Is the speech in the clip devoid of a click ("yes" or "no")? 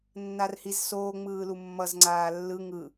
no